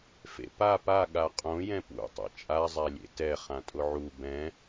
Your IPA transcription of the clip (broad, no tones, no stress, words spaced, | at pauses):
fḛpa pa ɠaqʼõ jɛ̃pṵ tˤḛt͡ʃʼa zˤælʲḛtɛ χãtʼʊʕu bɛ̃